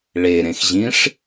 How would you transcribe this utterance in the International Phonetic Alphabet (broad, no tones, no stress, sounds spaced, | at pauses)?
ɭ e ɾ ẽ x ʑ ĩ ʂ